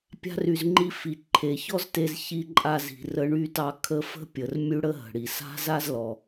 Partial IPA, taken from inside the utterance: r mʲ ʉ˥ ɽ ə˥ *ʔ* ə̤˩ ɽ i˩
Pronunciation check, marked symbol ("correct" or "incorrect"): incorrect